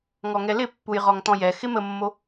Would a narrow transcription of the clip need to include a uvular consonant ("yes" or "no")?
yes